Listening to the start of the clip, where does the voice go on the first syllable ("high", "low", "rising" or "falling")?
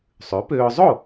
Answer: rising